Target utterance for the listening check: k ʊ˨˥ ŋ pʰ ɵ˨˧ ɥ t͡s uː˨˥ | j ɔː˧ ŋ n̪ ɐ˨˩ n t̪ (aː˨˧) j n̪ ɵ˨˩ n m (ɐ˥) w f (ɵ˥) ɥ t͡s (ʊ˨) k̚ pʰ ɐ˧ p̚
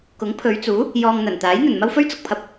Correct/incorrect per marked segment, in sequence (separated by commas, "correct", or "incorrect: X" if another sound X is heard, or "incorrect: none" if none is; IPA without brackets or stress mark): incorrect: aː˨˥, correct, correct, correct